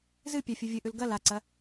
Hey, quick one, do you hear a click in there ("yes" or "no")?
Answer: yes